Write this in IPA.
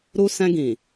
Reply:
ɾ u˧ s ɛ̃˧ ɡ ĩ˨

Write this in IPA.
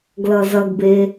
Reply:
ɡ l ʌ z ʌ ɡ b e

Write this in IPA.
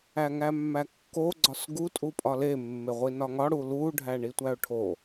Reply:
æ ŋ æ mː æ kː o ɡ͡ǀ ɒ s ɡ u tʼ u pʼ ɒ l e mː e ʁʷ i n ɒ ŋ ɒ ɽ u l u ɖʱ æ ɳ i tʷ æ ʊ̯ ʈʰ o

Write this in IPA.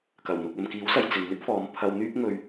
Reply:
k ɐ˨˩ w n̪ ʊ˨ k̚ ɐ˨ m k iː˨˥ w s ɐ˨ j t͡s ɪ˨ ŋ n̪ ɪ˥ k̚ f ɔː˨˧ m pʰ ɐ˧ w n̪ yː˥ p̚ ŋ ɵ˧ ɥ

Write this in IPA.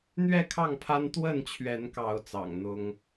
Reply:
n̪ ɥ ɛ˥˨ kʰ ɑ˥˨ ŋ pʰ a˦ n t̪ w ə˥˨ n t͡ɕʰ ɥ ɛ˨˦ n k ɑ˨˦ ʊ̯ t͡s ɑ̰˨˩ ŋ n̪ ʊ˦ ŋ

